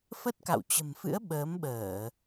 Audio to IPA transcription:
f ə˦˥ t̚ k a̰˧˨ w t͡ɕ ə̤˨˩ m f ɨ̰˧˥ ə̯ ɓ əː˨˦ m ɓ əː˧˩˨

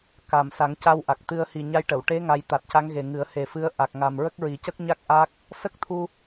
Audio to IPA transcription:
k a˨˩ m s a˨˩˦ ŋ c a˧ w ʔ a˨˩ k̚ t̪ ɨ˧ ə̯ h i˨˩ ɲ a˧ j ʈ ə˨˩˨ w ʈ e˧˥ ŋ a˧˥ j t̪ a˨˩ t̚ c a˧˥ ŋ ɣ e˨˩ ŋ ɨ˨˩˦ ə̯ h e˨˩ f ɨ˧˥ ə̯ ʔ a˨˩ k̚ ŋ a˨˩ m ɹ ə˦˥ k̚ ɹ i˨˩˦ c ə˦˥ k̚ ɲ a˦˥ k̚ ʔ a˦˥ k̚ | s ə˦˥ k̚ t̪ʰ u˧

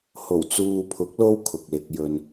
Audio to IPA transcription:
h o˨˩ w t͡s uː˨ pʰ ʊ˨˥ k̚ l o˧ w kʰ ʊ˨ k̚ l ɪ˧ k̚ j ɵ˧ n

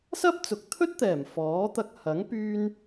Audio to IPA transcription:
s ɐ˥ p̚ t͡s ʊ˨˥ k̚ t̪ʰ ɵ˥ t̚ t̪ ɛː˨˩ m f ɔː˨˥ t̪ ɐ˧ k̚ h ɐ˨˥ ŋ p yː˥ n

